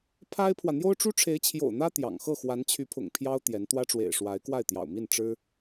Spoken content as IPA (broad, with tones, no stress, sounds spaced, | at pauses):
pʰ a˥ ɪ̯ pʰ w ä˨ n̪ j o˥ ʊ̯ ʈ͡ʂ u˥ ʈ͡ʂʰ e˧˥ ɪ̯ t͡ɕʰ j o̰˨˩ ʊ̯ n̪ ä˥ t̪ j ɑ̰˨˩ ŋ x ɤ˥˩ x w a˧˥ n t͡ɕʰ y˧˥ pʰ ʊ̰˨˩ ŋ pʰ j ɑ˥ ʊ̯ t̪ j ɛ˧˥ n t̪ w ä˥ ʈ͡ʂ w ḛ˨˩ ɪ̯ ʂ w a˧˥ ɪ̯ k w a˥˩ ɪ̯ t̪ j ɑ̰˨˩ ʊ̯ m i˥˩ n ʈ͡ʂ ɻ̩˥